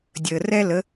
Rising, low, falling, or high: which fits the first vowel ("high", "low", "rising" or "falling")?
low